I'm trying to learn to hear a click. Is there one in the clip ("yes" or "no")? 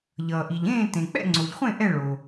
yes